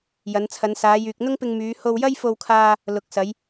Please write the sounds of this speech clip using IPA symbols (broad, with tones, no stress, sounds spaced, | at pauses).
j ɐ˨˧ n t͡sʰ ɐ˨˧ n s aː˨˧ j yː˨ k̚ n̪ ʊ˥ ŋ p ɪ˧ ŋ m yː˨˧ h o˧ w j ɐ˥ j f o˧ w kʰ aː˧ | l ʊ˨ k̚ s ɐ˨˧ j